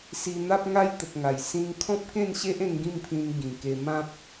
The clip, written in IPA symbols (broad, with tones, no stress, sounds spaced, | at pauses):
s i˧ n̪ a˦ p̚ ŋ a˦ j t̪ ə˨ k̚ ŋ a˨˩ j s ĩ˦ ŋ kʰ ɔ̃˦ p̚ k ẽ˥˧ n ɕ e˦ ʔ ẽ˧ ŋ ɡ ĩ˥˧ m pʰ ĩ˧ n ɡ ĩ˨˩ k e˧ m ã˦ p̚